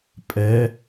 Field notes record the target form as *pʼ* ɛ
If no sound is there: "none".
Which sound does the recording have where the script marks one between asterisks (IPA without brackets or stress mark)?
pʼ